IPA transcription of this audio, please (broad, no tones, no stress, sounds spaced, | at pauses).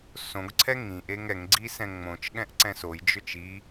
s õ ɡ ǀʰ ɛ ŋ ĩ ʔ e ŋ ɛ ŋ ɡ͡ǀ i s ɛ̃ ŋ͡m õ t͡ʃ ɠ ɛ̃ ʔ ǀ ɛ̃ s o j d͡ʒ ʏ t͡ʃ i